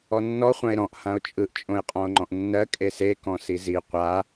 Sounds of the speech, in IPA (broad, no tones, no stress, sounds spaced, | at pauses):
ɔ nː ɔ χʷ ã e̯ ɾ ɔ̃ ʔ h ã o̯ t͡ʃʼ ɯ ʔ t͡ʃʼ õ e̯ qʼ ɔ̃ o̯ ŋ͡ǃ ɔ̃ ʔ nː ɜ kʼ e s e k ɔ̃ s i z i qʷ a